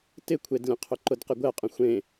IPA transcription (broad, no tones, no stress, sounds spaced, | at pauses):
t ɪ kʷʰ e d lʲ ɐ̃ qʰ ʏ ǃ ʊ d q ɪ ɡʷ ɛ qʼ ə̃ xʷ ẽ